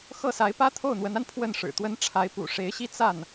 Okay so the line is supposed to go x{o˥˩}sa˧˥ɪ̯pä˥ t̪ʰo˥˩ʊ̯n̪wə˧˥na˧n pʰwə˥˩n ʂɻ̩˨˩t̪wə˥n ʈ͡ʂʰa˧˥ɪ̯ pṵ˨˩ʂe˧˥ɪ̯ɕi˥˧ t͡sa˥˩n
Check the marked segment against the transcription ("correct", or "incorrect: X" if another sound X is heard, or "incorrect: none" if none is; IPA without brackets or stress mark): incorrect: ɤ˥˩